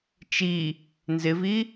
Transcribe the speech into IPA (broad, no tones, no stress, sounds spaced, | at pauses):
t͡ʃ i | n z ɪ v i